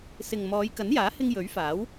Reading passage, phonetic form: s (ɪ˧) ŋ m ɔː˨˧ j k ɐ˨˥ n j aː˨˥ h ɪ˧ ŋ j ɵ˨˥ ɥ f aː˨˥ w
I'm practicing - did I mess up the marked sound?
yes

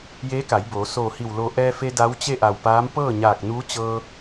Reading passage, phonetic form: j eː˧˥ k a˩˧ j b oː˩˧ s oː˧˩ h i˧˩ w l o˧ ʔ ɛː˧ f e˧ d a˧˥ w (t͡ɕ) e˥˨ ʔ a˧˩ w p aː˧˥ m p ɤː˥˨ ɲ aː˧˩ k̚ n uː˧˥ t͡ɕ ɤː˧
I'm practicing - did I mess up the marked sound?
no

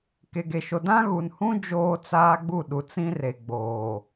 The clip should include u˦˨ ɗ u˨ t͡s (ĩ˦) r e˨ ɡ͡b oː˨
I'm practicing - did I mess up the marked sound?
no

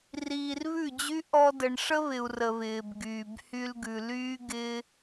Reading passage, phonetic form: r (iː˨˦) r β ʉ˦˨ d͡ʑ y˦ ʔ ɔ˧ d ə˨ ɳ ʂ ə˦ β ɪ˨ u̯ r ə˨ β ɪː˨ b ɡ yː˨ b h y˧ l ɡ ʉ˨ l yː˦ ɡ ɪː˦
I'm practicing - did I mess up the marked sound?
yes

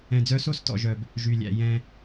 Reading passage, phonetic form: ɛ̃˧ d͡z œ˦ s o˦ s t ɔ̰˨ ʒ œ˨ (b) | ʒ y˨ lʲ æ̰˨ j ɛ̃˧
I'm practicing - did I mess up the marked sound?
no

